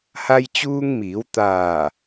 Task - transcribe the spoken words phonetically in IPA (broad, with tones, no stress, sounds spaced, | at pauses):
h a˧ j t͡ɕ uː˧ ŋ m iː˩˧ w t̪ aː˧˩